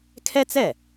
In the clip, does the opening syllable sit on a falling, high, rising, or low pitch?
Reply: high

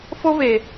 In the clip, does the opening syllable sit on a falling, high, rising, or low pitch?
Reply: high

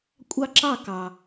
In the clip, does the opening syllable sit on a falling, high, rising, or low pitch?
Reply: high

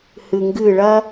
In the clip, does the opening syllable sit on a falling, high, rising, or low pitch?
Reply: low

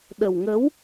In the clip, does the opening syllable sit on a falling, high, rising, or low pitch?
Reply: low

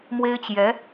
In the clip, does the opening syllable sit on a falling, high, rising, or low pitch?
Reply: high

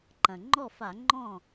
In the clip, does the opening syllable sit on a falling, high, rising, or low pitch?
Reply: low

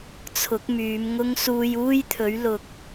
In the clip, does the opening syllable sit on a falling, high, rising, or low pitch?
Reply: rising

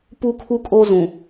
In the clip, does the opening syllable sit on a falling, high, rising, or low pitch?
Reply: high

